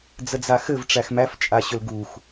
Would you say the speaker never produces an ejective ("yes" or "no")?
no